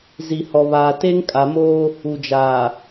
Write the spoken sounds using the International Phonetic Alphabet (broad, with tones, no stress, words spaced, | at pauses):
zi˨hɔ˨βaː˨ te˦ŋkʼa˨moː˦ | u˨d͡ʒaː˨